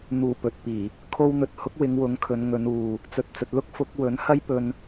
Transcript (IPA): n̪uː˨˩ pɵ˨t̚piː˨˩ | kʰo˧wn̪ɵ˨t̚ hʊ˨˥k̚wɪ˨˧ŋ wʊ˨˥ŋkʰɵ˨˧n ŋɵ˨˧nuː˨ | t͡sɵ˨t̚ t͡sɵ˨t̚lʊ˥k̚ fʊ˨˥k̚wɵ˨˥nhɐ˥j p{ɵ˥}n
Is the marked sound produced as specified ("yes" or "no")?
no